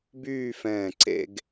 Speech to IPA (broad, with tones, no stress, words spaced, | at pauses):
byː˥˧fɛ̃ː˧˩ ǀḛ˥˧ɡ